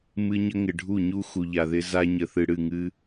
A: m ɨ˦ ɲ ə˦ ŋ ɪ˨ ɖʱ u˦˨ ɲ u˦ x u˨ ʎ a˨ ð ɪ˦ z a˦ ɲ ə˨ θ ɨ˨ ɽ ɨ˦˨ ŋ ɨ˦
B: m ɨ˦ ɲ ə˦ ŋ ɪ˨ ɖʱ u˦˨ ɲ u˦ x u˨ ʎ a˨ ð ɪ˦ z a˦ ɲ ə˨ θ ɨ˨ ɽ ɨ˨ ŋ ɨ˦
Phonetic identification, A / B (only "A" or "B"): A